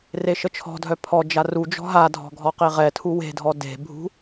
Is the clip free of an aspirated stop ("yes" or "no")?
no